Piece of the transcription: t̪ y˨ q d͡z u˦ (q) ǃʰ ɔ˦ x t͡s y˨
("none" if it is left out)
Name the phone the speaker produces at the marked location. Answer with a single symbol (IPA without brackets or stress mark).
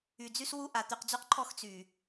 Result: q